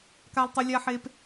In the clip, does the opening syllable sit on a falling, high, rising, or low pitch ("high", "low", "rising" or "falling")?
low